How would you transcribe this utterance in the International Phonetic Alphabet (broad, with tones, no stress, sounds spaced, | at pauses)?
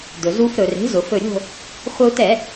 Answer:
d̪ ɵ˩ z u˧ f ɾ ɵ˩ r e̤˩˥ z ʊ˩ f ɵ˧˩ ɾʲ o̤˥˨ | χʷ ə˧ u̯ t ɛ˧˩˧